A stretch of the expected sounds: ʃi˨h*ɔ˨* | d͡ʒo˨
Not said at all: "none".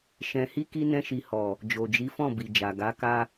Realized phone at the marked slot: ɔ˨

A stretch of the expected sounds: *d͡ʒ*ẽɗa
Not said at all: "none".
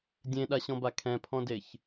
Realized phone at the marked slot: dʲ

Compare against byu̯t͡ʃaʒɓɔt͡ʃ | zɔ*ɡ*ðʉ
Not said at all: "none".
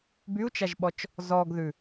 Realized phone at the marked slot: ɡ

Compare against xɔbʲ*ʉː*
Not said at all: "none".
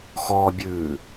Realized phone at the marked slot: ʉː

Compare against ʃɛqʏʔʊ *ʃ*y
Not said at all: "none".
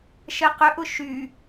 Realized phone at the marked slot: ʃ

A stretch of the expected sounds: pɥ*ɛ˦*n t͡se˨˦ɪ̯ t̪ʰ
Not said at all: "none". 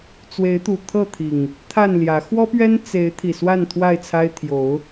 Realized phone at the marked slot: ɛ˦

